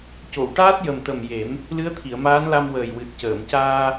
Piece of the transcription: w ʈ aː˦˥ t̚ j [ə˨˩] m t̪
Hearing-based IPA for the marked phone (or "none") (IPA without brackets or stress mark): ə˨˩